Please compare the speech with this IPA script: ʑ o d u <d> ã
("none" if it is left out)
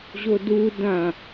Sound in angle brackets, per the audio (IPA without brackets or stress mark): d